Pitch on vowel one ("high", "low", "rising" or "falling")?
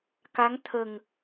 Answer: rising